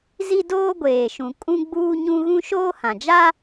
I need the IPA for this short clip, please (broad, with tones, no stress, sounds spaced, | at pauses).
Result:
z i˦ d oː˦ ɡʷ eː˨ ʃ ũ˨ kʼ ũ˦ ɡ͡b uː˦ ɲ ũ˦ ɣ ũ˦ ʃ oː˦ h ã˨ d͡ʒ a˦